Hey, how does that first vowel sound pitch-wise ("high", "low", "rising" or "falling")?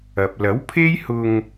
low